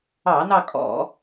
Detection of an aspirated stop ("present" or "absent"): absent